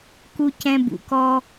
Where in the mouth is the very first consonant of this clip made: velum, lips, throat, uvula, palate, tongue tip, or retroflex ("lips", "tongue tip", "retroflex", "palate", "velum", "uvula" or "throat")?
velum